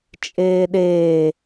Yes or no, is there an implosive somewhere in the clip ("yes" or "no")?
yes